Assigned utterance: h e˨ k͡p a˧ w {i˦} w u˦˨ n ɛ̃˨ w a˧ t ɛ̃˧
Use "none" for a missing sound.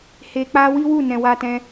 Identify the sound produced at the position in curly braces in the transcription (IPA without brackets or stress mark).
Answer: i˦